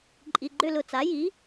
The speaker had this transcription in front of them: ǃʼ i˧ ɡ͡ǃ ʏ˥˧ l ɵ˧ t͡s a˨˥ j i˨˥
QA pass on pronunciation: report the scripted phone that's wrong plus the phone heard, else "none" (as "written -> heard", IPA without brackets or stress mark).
ɵ˧ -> ʊ˧